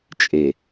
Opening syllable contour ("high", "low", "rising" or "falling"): low